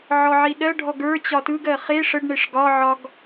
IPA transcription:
ʕ ɔ ʕ i ɗ ɜ ɖʱ ɔ ɡ ə˞ t͡ɕ ɒ t ɯ ɡ ɜ χ e ʂ ə ɖ ɳ e ʂ ɡ ɒ ʕ ɒ ɡ

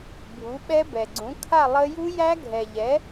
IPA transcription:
bʱ u˨˥ ɓ ɛ˦˥ b ɛ˨ ɡ͡ǀ ũ˨˥ kʰ a˥˧ lˠ ə˦˥ j u˦˥ j æ˦˥ ɡʱ ɛ˨ ʎ ɛ˨˥

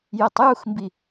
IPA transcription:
j ɛ tˤ j u x m b i

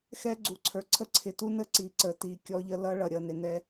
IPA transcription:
x ɛ˦ ɡ͡ǀ u˨ ǀʰ ə˞˨ ǀʰ ə˦ ǀʰ ɪ˨ t u˦ n ə˦ ǀ i˨˦ ǀ ə˨ t i˨ kʲ ɔ˦ ʎ ə˦ l ʌ˦ ɭ ʌ˨ ɾʲ ʌ˦˨ n ɪ˨ n ɛ˦

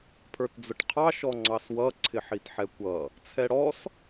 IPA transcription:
pʰ ə˞ t d͡z ʊ ʈ qʰ ɑ ʃ ɔ ŋ͡ǀ ɑ s w ʌ ǀʰ ɪ ħ i t ħ ɛ kʷ ʌ | t͡sʰ ɛ ɽ ɔ s

